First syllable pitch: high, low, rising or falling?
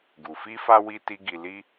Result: low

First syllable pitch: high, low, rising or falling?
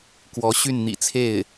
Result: rising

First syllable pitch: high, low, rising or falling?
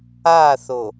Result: falling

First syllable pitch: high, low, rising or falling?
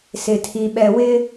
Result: low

